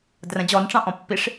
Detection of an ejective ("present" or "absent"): absent